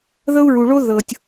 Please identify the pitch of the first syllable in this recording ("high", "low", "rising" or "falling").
high